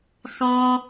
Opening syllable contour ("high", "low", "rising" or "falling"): high